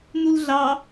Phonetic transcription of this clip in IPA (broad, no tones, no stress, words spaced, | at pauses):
nulɮɑ